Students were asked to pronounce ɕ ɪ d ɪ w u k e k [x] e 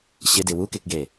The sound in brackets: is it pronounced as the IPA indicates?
no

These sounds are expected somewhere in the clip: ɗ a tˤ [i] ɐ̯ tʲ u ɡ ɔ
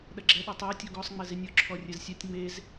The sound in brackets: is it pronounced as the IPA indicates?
yes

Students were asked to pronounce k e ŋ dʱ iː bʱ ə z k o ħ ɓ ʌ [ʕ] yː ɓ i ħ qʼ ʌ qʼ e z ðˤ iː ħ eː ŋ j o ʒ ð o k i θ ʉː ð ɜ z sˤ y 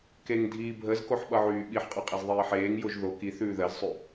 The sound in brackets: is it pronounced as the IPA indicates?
yes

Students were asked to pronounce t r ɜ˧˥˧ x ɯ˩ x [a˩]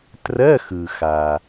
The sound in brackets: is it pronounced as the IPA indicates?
yes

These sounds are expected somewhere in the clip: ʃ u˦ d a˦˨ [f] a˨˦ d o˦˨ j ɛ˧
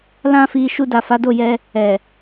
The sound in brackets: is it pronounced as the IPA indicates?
yes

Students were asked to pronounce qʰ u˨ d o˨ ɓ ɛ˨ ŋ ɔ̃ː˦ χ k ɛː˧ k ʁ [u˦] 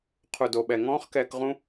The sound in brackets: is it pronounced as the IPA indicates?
no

